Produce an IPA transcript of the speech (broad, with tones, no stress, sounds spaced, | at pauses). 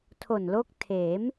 tʰ o˨˩ n l o˦˥ k̚ tʰ eː˩˦ m